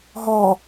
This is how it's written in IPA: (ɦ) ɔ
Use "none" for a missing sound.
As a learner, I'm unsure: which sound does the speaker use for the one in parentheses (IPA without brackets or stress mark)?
ɦ